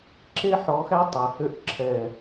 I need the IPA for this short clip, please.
ǁ e˦ ħ ɔ˨˦ x æ˦ tˤ æ˨ h ø˧ ʔ ǁʰ ɛ˨

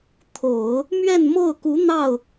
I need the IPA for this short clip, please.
t̪ʰ o˨˩˦ ʊ̯ | m ɥ ɛ˥˧ n m o˥˩ ʊ̯ k u˧˥ n̪ ɑ˥˩ ʊ̯

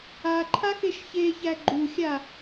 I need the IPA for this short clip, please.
a ǃʰ a x e ʃ ç e ç æ ɡ͡ǃ u xʲ a

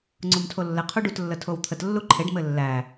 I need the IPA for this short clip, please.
ŋ͡ǀ u m tʰ o lː ɘ qʰ u ɖ u t lː ə tʰ o w t̪ʰ ə t lː u ǃʰ e ɖ m ɘ lː æ

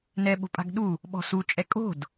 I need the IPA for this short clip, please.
n ɛ ɓ o̤ pʼ a̤ ɡ ɗ u | ɓ ɔ̤ s u t͡ʃʼ ɛ kʼ o̤ d

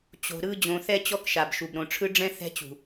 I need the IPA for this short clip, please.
t͡ɕ o̤˨ ɾ ɯ˦ d͡ʑ õ˨ θ ɛ˦ t͡ɕ ɔ˦ k ʃ a˨ b ʃ u˨ b ɾ õ˨ ʈ͡ʂʰ ɯ˦ ɖ͡ʐ ɛ̃˦ θ ɛ̤˦ t͡ɕ ṳ˨

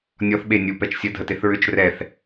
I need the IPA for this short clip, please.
nʲ ɔ θ ɓ e nʲ u p ɛ t͡ʃ sʲ ə dʱ ə t e θ ɹ ʏ t͡ʃ r ɛ θ

